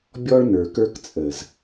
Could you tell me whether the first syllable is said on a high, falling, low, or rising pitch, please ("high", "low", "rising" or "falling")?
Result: high